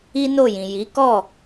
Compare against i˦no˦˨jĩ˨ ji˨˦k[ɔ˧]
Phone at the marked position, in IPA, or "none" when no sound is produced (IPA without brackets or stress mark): ɔ˦˨